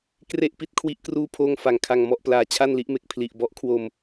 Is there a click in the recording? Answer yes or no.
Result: no